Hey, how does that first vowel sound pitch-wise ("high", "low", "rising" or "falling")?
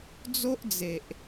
high